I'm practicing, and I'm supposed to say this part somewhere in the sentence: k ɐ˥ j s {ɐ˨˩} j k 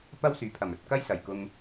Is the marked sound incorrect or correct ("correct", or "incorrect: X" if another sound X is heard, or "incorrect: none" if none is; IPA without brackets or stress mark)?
correct